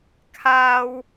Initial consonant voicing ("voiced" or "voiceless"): voiceless